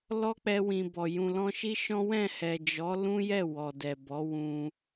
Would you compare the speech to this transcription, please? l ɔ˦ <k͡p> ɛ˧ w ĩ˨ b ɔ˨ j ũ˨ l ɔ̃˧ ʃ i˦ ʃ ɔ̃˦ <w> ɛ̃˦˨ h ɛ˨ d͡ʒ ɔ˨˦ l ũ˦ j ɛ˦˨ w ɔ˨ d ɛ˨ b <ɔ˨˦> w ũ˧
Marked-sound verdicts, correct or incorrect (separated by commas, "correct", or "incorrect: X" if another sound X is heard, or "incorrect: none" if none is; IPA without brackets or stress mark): correct, correct, correct